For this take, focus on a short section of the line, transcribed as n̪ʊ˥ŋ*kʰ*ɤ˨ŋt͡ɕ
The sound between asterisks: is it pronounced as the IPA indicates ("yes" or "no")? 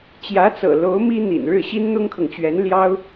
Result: yes